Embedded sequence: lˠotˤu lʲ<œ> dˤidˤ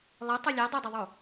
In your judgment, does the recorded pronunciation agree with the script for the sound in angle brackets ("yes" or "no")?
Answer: no